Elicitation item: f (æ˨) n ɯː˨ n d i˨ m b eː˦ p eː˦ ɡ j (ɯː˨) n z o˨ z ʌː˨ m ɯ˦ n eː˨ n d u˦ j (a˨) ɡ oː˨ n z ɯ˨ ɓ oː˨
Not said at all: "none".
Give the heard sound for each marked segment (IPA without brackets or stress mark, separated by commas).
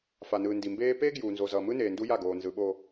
a˨, uː˨, a˦˨